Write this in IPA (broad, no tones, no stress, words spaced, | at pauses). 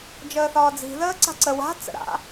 d͡ʒəːθɒːd͡zi̤ ðəːǀa̤ǀə wa̤ t͡sə̰ɾa̰